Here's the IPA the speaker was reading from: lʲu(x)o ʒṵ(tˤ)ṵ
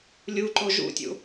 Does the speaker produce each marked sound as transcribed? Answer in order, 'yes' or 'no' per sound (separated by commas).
no, no